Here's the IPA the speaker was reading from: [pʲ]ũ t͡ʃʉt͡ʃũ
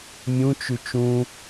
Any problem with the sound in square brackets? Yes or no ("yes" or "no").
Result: yes